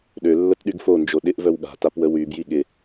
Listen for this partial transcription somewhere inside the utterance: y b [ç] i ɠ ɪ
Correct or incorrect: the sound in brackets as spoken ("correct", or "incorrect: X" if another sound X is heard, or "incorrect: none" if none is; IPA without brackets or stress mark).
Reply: incorrect: j